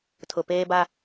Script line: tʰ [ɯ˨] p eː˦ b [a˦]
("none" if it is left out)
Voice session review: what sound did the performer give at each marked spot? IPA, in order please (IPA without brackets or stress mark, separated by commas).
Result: ʊ˨, a˦